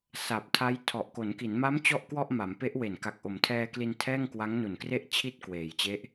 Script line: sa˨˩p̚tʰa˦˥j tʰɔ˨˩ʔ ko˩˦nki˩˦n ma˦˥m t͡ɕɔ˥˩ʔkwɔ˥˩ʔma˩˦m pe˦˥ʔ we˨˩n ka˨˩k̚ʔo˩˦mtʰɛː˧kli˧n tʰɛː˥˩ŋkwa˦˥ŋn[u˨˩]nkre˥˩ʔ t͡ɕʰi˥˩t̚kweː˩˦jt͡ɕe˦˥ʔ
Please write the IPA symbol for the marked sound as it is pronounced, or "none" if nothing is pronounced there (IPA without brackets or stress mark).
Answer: u˨˩